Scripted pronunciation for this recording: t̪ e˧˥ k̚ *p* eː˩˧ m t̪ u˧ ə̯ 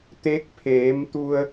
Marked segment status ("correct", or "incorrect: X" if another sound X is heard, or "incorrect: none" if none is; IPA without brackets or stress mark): incorrect: pʰ